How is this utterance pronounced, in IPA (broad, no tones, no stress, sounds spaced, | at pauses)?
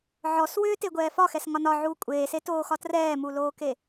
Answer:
ʕ ɔ s w ʏː t e ɡʷ ɛː f ɒ x ɛ s ŋ ɒ n ɒ ʕ uː kʷʼ eː s e t oː x ɒ t r ɛː m u l oː k e